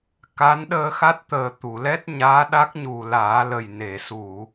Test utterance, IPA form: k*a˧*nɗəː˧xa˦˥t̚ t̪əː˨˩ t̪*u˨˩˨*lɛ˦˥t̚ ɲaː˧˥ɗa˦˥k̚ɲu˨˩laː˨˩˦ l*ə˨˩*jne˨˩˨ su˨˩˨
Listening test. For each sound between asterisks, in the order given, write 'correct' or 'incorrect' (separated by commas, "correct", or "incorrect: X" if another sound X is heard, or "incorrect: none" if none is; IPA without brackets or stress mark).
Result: incorrect: a˧˥, correct, correct